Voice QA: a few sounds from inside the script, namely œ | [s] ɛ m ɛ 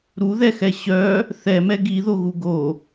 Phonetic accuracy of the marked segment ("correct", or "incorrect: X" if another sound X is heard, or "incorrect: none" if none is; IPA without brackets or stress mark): incorrect: θ